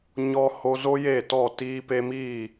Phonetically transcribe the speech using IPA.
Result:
ɲ ɔ˧ h o˧ z o˦ j e˦˨ t ɔ˦˨ t iː˧ p e˧ m iː˦˨

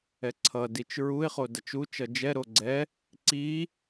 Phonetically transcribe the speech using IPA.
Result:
ɛ ǀʰ ʌ d i t͡ʃ ɹ u ɪ̯ χ o d ʌ t͡ʃ u t͡ʃ ʌ d͡ʒ ɛ ɾ o ɡ͡ǀ ɛ | ǀ i

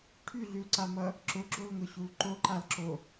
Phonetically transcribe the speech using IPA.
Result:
ʈʰ y ɮ y l ǀ a m ʌ | ǁ ʊ ɡ͡ǁ o l ŋ ʊ ɕ u l ǃ o ǃ a l ǁ o

